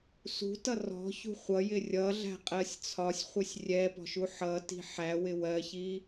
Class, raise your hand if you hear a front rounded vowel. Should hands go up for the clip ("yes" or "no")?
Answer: no